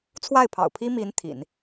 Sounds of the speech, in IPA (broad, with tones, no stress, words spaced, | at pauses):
t͡sʰwa˥˩ɪ̯pʰɑ̰˨˩ʊ̯pʰi˥ mi˧˥n t̪ʰḭ˨˩˦n